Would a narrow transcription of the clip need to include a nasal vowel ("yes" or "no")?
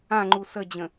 yes